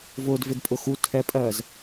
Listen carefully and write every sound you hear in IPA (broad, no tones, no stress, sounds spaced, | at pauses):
v ʊː d v ɪ d pʼ ʊ x u tʰ ɛ pʼ ɜː z